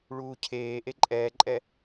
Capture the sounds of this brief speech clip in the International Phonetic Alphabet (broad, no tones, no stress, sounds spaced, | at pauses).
ɭ uː cʰ eː ʔ e ǃʼ ɛː ǃʼ ɛ